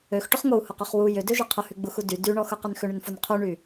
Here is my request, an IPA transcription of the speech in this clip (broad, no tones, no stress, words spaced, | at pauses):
øxʈʊχ ŋou̯hʊqøχ wu jʏdøʒɪ qʰʊhyɡ͡buxu dy dyɳɔxʊqʏn xʏɳʏnfon qʰyɳy